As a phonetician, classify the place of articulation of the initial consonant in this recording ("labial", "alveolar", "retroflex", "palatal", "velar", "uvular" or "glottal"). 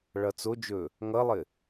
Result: retroflex